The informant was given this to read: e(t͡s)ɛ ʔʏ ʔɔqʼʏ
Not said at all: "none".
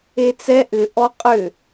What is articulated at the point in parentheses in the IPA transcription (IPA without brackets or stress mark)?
t͡s